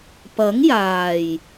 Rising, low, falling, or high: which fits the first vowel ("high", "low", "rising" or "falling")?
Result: rising